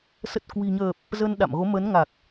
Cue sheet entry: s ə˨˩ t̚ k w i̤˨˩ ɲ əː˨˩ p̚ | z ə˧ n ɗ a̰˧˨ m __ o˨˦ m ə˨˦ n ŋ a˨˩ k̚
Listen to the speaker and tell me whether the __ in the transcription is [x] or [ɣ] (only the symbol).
ɣ